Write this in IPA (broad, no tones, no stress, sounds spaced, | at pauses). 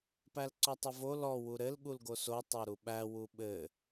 p æ l ǀ ɔ tˤ ɘ v o l ɔ w u ɾ ɘ l ɠ u l ɡ o s o tˤ o ɾ u ɓ æ w u ɓ ɘ